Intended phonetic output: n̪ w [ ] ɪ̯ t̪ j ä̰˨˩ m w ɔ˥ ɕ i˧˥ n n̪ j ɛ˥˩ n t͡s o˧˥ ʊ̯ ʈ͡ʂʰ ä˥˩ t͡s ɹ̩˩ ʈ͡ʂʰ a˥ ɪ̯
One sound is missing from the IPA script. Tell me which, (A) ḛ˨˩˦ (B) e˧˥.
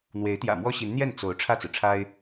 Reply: B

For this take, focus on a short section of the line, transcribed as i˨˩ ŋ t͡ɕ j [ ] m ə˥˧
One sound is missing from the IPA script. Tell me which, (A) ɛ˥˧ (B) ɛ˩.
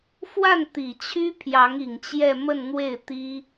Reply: A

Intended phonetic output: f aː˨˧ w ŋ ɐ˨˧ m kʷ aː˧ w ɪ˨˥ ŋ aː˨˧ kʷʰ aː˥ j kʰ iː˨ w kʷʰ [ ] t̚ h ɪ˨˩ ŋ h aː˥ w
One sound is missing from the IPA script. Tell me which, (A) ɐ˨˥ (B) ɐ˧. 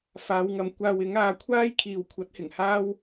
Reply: A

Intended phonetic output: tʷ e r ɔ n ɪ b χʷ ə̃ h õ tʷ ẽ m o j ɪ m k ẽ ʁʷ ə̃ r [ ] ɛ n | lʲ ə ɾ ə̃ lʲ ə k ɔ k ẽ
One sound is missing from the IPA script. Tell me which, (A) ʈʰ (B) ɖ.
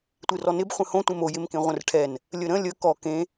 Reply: A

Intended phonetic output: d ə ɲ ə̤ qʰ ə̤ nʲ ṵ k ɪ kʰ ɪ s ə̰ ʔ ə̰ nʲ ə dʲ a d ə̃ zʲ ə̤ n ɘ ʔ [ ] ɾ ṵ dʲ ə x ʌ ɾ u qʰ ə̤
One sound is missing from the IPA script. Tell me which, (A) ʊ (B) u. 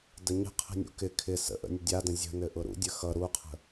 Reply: A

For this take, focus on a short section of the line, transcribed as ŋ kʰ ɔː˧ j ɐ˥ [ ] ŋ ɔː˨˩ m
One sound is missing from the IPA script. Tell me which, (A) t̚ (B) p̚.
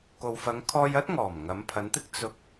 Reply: A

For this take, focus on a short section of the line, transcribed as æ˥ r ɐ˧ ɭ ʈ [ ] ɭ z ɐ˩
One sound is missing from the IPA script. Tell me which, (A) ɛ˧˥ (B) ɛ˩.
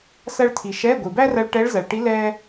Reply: A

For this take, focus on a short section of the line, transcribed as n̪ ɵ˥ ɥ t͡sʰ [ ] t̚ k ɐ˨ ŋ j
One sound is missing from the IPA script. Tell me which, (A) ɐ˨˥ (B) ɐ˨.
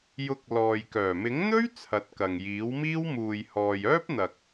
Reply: A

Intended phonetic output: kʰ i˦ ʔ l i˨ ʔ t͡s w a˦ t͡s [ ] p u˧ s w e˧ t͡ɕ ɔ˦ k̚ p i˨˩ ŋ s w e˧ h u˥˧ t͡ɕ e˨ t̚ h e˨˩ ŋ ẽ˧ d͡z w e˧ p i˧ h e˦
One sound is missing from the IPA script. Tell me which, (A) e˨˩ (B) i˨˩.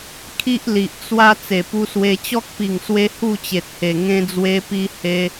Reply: A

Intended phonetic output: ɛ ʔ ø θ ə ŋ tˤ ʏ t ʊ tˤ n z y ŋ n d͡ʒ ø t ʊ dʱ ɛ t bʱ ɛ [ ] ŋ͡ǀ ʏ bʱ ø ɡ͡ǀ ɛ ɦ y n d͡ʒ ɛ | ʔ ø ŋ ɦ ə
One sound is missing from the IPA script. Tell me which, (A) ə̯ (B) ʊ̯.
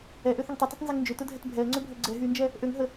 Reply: A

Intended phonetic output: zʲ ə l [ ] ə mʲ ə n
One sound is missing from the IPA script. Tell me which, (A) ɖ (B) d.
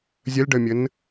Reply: A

